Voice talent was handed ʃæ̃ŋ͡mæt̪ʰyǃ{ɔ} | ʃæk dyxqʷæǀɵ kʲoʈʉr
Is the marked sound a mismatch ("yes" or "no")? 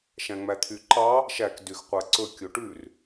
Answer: yes